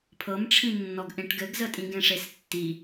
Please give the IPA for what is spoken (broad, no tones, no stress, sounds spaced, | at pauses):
pʰ ɤ m ʈ͡ʂʰ ĩ nː ɔ ɡ ʔ ẽ ʈ ɡ ɘ ɡ z ə tʼ ĩ ɡ ẽ ʂ e s tː i